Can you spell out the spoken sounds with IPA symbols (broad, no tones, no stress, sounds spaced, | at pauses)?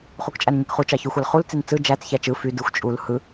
χ u k t͡ʃʼ æ n ɲ i k χ u t͡ʃ ɑ ç y xʷ ɑ l χ u l t͡s i n t͡s ɯ d͡ʒ æ t͡s ç æ t͡ʃ ɯ f y d ɯ xʷ t͡ʃʼ u l h ɯ